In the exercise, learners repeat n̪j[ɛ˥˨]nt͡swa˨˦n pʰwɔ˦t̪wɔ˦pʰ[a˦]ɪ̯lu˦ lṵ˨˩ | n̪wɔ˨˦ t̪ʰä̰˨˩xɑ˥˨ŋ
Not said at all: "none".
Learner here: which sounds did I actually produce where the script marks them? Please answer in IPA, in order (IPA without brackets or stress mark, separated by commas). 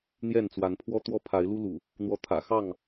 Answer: ɛ˥˨, a˨˦